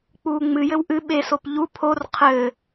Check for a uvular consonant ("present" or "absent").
present